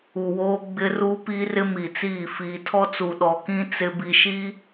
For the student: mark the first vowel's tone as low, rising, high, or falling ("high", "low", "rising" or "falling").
low